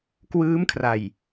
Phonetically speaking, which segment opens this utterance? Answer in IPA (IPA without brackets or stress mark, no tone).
k